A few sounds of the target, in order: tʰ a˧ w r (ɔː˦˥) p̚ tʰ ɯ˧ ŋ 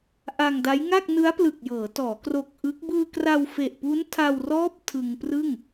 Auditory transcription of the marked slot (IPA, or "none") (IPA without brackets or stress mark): ɔː˦˥